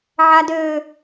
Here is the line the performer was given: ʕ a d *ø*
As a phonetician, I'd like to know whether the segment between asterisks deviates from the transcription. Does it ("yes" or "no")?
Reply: no